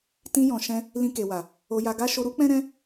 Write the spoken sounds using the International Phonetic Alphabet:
tĩ˧jɔ̃˨ʃɛ̃˧ | lĩ˧ke˨wa˨ | o˧ja˧ɡa˦ ʃo˧ɾu˦k͡pɛ̃˦ɾɛ̃˦

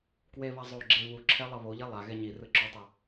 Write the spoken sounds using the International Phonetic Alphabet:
kweβa zˤoɡ͡ǁe βuǁʰɛ lˠʌβoʎe lˠa ɣɛɲirɯ ǁotˤɯ

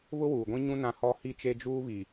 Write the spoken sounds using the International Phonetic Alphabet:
βʊ˦wuː˨ɡʷĩ˦ɲũ˦ nã˦hɔ˦ hi˦˨t͡ʃe˦d͡ʒuː˦βi˨

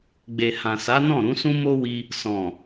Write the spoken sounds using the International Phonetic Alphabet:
ɡ͡be˨ hã˨sa˨˦nɔ̃˦˨ɾũ˨˦ sũ˦mo˦wi˧ | sɔ̃˨

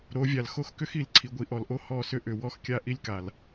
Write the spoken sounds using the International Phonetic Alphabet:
ɾo˨˦vʲa˨l xo˦xkʏ˦xi˨l ǀʰi˨ɡʷi˨ʔɔ˨lʔo˦ hɔ˦˨sʏ˦ ʔʏ˨wɔ˦xkʲa˦ ʔi˦lʲka˨l

